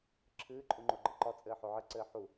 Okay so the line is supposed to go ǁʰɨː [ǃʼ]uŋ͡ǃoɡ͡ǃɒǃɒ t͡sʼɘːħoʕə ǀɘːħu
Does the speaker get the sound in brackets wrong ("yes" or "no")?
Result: no